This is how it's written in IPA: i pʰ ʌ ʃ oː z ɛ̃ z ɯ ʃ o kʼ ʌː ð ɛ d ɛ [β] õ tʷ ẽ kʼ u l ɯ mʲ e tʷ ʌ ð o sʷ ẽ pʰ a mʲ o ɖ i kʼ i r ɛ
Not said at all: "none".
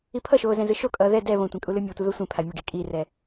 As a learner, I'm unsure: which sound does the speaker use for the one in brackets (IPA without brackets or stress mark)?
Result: β